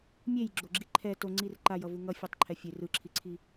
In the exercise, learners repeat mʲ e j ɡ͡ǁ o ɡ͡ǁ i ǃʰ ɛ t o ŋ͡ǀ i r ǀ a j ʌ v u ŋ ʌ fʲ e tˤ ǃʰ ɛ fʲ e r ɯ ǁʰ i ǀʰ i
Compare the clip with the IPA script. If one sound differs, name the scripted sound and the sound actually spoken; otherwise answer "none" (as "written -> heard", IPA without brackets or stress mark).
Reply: ǀ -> ǃ